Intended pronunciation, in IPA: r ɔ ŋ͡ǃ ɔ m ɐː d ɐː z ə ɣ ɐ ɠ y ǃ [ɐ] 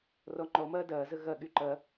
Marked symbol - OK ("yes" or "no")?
yes